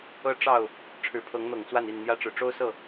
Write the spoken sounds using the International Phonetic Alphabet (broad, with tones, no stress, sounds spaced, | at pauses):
ɤ˦ ʈ͡ʂ ɑ˥˨ ʊ̯ | ʈ͡ʂʰ ɻ̩˨˦ pʰ ɤ˨˦ ŋ n̪ ɤ˨˩ ŋ t͡s w a˥˨ n i˥˨ n n̪ j ä˦ ʈ͡ʂ ɻ̩˨˩ ʈ͡ʂ o˦ ʊ̯ s ɤ˥˨